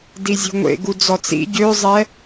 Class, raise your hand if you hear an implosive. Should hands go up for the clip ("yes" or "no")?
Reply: no